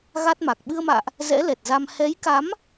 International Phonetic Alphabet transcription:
ɣa˦˥t̚ma˨˩k̚ ɓɨ˧ə̯ma̰ː˧˨ʔ | zɛ̰˧˥lɛ˨˩t̚za˧m hɛ˨˦jka˨˦m

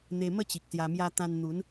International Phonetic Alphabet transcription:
n̪e˧mə˥˧t͡ɕi˨k̚ sja˨˩mja˧ t̪ã˧nn̪u˨˦n

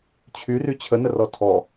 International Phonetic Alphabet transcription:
t͡ɕʰyry t͡ɕʰənərɔ tʰɔ

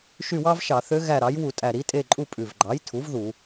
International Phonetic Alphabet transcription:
ʃy˦˨wɑ˥vʃɑ˧˩˧θø˧˥ ɣæ˦˨ɾɑ˩˥j wu˧˩˧tʼæ˨˩ɾi˩˥tʼe˦˨ ǃʼu˦˨pʼʉ˨˩vɡ͡ǃɑ˩˥jtʰu˩˥v ðu˧˩˧

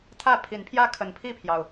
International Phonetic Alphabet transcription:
t̪ʰä˥˨pʰi˨˦npʰjä˦ kʰə˨˦npʰi˥˨pʰjɑ˩ʊ̯

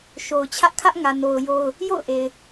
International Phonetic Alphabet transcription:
ʃo˨ʊ̯t͡ɕʰä˦ʔ kʰä˦ʔŋä˨no˨ʊ̯ jo˦ʊ̯ | jo̰˦˨ʊ̯ʔe˨ɪ̯

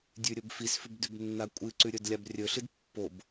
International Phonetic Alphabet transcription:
dʲʉɾʲɵbfisfʉb dʉbnːakʷʼɨǀʉ ɾʲɵdlʲabrʲɵɬɨd pːob

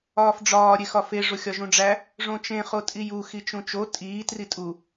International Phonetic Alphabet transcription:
ɒːfɖ͡ʐɒː ɾʲexɒfe ʐoxʲɒʒũɖ͡ʐæ | ʐõt͡ʃẽ χotʼiju xit͡ʃũt͡ʃo tʼiː tritʼu

